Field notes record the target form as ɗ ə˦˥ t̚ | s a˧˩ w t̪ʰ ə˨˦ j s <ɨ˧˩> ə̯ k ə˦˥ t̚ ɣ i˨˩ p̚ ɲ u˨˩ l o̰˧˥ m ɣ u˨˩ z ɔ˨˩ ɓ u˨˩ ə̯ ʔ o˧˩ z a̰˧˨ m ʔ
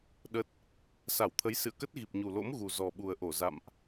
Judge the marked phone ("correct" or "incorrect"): incorrect